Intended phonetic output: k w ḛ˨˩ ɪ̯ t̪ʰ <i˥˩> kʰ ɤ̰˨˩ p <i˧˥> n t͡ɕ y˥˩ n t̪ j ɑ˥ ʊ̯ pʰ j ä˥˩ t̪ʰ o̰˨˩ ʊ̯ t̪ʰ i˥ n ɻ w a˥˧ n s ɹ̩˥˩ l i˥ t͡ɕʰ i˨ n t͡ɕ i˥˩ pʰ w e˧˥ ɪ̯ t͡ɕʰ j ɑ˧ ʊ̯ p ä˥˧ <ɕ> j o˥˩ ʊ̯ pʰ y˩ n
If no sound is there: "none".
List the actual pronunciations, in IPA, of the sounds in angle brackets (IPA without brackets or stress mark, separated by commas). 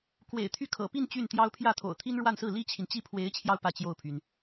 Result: y˥˩, i˥˧, t͡ɕ